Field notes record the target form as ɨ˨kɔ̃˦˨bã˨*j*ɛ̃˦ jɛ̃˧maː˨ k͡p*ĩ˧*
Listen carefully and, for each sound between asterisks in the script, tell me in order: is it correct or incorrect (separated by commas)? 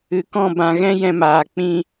incorrect, correct